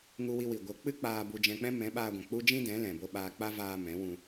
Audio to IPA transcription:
ŋ u˧ w i˧ w i˨ ɡʷ ə˨˦ k͡p ɨ˦ k͡p aː˧ b u˧ d͡ʒ ɛ̃˧ k͡p ɛ̃˦ m ɛ̃˨˦ ɓ aː˧ ɡʷ ɛ̃˨ k͡p u˦ d͡ʒ ĩ˦ d ɛ̃˨˦ l ɛ̃˨ b o˧ ɓ aː˧ k͡p a˦ v aː˧ m ɛ̃˨˦ w ũ˧

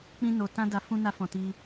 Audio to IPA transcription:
k͡p ĩ˦ n o˧ t ã˦ d a˦ f ũ˦ n a˦ f ɔ̃˧ t i˦

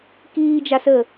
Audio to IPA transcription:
k iː d͡ʒ a s əː

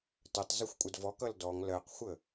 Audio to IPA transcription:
t ə tˤ z ʊ xʷ kʷʼ ə d v ɔ k ʌ l d ɔ ŋ l ɜ q xʷ ə

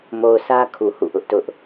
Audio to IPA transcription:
m o˨ ʊ̯ sʰ ä˦ kʰ u˨ h ṵ˦˨ ʔ ʊ˦ ʔ t ʊ˦ ʔ

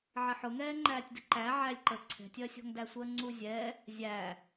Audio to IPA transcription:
ʕ ɪ ħ ʊ ŋ ɛː ŋ͡ǃ æː tʲ d ɪ ǃ æ ʕ æ lʲ ǃ ə ǀʰ ɛ̤ tʲ ɜ sʲ ɔ̤ ŋ d æ sʷ ɜ ŋ͡ǀ u zʲ ɛː | zʲ æː

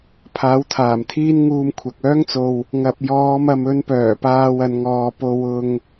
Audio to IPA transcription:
pʰ aː˨˥ w t̪ʰ aː˨˩ m t̪ʰ iː˥ n ŋ uː˧ m kʷʰ ɐ˨ k̚ œː˥ ŋ t͡s o˨ w | ŋ ɐ˨ p̚ j ɔː˨˧ m ɐ˨ m ɵ˨˧ n p œː˨˩ p aː˧ w ɐ˨˧ n ŋ ɔː˨˧ p o˧ w ʊ˧ ŋ

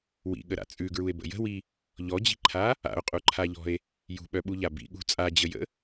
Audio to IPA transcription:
w ḭ ɠ ə ɾ a̰ t͡sʼ ʉ ɡ ɹ u e̯ b ə̰ j ə̤ w i | ʎ ɔ d͡ʑ i̤ ǃʰ a | a̰ o̯ qʼ u ǃʰ a ʎ ɔ̤ e̯ | j ṳ ɓ œ ɓ u ʎ a b ḭ ɠ ṳ t͡sʼ a d͡ʑ ə j ə̰

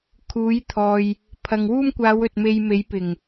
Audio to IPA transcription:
kʰ uː˨˥ j t̪ʰ ɔː˨ j | pʰ ɐ˨ ŋ w uː˥ m kʷ aː˨˧ w ɵ˨ t̚ m e˧ j m e˨˥ j p ɪ˨˩ ŋ

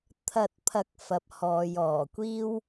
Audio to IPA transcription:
t̪ʰ ɐ˨ t̚ pʰ ɐ˨ k̚ f ɐ˧ p̚ h ɔː˨˧ j ɔː˨˩ kʷ iː˥ w

